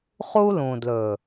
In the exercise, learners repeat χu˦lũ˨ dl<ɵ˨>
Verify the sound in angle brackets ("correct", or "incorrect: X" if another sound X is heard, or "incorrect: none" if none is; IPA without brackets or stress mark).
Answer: correct